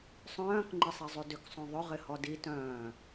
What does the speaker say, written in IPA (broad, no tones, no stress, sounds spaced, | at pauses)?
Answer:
sˤ œ̃ː k ŋ͡ǃ ɪ sˤ i zˤ y d ʏ k sˤ õ ðˤ ʏ ʁ ɪ h ɔ d i t œ̃ː